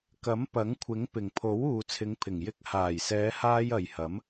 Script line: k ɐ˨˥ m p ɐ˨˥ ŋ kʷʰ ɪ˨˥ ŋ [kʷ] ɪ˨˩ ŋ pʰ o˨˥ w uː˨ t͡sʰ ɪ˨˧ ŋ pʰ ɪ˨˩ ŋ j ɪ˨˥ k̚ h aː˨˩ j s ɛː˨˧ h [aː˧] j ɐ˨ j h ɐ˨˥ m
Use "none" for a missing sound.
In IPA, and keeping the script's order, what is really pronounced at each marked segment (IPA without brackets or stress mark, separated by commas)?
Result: p, aː˧